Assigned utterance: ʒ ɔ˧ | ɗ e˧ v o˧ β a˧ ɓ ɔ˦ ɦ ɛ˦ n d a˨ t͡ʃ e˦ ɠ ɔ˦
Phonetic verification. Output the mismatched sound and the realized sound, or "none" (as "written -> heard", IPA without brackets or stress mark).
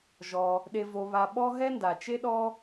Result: ɠ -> ɗ